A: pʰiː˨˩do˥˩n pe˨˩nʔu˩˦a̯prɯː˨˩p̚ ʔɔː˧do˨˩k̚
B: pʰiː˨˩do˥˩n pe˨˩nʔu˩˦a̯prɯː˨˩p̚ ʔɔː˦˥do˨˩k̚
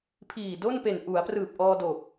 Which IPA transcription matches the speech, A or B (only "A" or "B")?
A